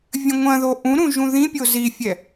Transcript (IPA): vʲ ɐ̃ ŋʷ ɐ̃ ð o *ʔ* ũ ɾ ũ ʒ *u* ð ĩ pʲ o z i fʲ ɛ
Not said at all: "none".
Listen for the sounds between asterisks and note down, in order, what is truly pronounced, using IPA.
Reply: ʔ, ũ

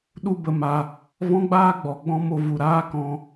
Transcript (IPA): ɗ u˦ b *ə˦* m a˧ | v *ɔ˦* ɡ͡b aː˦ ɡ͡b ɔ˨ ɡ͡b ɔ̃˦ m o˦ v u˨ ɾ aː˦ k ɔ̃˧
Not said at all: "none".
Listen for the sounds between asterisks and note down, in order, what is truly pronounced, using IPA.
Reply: ə˧, ɔ̃˦

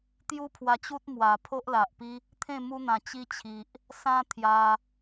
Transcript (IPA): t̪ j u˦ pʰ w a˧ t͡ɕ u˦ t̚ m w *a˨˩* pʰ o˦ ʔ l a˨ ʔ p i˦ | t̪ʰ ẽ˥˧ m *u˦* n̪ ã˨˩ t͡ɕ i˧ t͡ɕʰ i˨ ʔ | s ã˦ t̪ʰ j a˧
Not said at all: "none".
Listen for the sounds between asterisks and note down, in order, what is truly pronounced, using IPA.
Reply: a˨˩, u˦

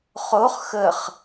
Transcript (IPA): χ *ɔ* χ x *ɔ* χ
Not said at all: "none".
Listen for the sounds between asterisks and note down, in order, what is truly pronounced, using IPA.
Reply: o, ə

